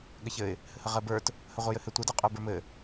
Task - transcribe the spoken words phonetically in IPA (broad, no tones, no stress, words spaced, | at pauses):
ɠɘçɘɪ̯ | hɘhəʁɜbə˞t | həʁʷɜjɘhɘ tʷə dɜqʼə˞bə˞mɘ